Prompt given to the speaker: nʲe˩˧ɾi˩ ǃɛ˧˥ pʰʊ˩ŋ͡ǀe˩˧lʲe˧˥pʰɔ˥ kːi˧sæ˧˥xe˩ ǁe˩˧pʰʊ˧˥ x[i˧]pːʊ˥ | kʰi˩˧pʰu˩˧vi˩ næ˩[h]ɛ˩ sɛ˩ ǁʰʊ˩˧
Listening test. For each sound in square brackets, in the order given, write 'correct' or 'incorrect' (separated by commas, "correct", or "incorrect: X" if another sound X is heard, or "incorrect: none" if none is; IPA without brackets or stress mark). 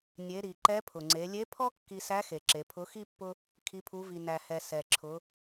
incorrect: i˥, correct